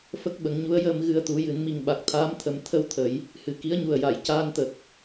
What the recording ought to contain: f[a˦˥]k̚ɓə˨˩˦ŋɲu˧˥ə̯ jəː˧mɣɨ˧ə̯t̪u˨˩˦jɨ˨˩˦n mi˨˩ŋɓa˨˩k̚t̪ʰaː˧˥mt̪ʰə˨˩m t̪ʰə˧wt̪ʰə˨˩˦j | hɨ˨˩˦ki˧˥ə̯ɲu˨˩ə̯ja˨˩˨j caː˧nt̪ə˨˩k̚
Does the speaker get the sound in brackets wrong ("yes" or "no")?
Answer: yes